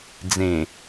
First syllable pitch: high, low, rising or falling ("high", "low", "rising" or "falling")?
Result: low